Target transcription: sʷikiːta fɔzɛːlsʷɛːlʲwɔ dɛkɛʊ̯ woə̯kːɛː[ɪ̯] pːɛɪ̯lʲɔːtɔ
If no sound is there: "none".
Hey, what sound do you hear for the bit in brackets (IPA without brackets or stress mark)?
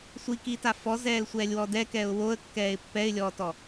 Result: ɪ̯